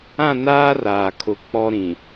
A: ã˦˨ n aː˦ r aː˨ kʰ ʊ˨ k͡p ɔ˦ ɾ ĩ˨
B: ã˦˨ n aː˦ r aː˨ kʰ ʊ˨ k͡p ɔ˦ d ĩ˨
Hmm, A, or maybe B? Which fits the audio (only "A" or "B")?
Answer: A